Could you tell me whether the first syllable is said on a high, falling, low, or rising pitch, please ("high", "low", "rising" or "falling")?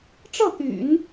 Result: falling